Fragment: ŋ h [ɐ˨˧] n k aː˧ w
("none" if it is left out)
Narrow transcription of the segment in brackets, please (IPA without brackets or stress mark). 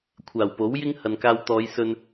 ɐ˨